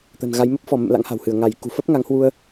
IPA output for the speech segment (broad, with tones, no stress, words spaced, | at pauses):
t̪ə̤˨˩nɣa˨˦j mə˦˥p̚fɔ˧˩mə̰˧˨m la̰˧˥ŋha̤˨˩whɨ˧˩ə̯ ŋa˧˩jkṳ˨˩ fə˦˥p̚ŋa˨˦ŋhwu˧ə̯